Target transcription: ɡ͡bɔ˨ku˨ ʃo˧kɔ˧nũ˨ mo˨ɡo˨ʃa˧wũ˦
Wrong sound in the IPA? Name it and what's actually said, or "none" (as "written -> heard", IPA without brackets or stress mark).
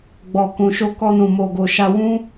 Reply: u˨ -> ũ˨